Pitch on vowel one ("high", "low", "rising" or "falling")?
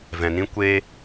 low